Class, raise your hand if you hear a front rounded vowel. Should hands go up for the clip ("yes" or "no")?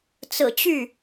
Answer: yes